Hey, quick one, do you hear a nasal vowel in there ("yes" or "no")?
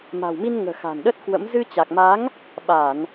no